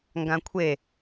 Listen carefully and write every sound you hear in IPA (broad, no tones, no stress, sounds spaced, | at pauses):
ŋ ɡ ã kʷʰ e